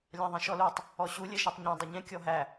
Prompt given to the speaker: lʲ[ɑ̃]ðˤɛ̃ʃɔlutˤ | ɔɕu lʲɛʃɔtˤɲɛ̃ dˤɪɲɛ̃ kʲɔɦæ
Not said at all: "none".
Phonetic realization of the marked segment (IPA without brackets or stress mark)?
ɑ̃